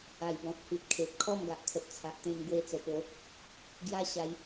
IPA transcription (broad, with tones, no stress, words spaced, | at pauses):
a˨˩jbɔ̃˨t̚ hi˨t̚kʰe˨p̚ kʰɔ˥˧mɡa˨ʔkʰə˨t̚ t͡sʰa˨ʔt̪ẽ˧m ɡwe˧t͡sə˨˩po˨˦ | ɡja˦ ɕa˧j